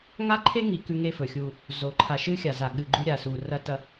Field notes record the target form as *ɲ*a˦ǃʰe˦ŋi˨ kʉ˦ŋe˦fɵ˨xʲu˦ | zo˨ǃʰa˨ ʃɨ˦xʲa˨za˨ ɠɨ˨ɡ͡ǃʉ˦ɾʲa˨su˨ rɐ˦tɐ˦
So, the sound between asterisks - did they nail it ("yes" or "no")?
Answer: no